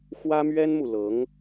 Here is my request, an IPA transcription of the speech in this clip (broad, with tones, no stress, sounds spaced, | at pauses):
x w ä˥ m ɥ ɛ˥ n m u˨ l ɤ˧˥ ŋ